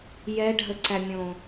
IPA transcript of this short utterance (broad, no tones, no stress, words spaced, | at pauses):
jɛɖʱəǀæmʲõ